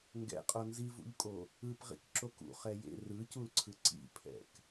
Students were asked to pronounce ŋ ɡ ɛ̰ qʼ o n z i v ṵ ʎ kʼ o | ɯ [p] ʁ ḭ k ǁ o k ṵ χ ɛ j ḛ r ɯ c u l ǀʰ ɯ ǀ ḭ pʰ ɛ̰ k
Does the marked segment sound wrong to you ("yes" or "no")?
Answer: no